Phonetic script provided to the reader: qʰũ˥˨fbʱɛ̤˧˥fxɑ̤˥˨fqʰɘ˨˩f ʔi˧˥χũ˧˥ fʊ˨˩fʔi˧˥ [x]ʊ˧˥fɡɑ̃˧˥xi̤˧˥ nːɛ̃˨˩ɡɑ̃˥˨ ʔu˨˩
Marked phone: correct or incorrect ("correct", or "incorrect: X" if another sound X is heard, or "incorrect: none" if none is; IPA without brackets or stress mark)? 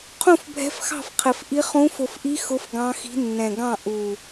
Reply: correct